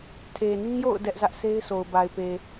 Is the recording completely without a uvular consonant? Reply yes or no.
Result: yes